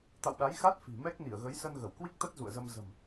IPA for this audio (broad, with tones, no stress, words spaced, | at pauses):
t̪a̰˧˨wɗa˨˦jxa˦˥t̚ fi̤˨˩ mɛ˦˥k̚ ni˧˩ə̯ɣə˨˦jsə˧n ɣə˧˩wkwi˦˥k̚t̪ə˦˥t̚ zṵ˧˨ə̯zə˧m zə̤˨˩m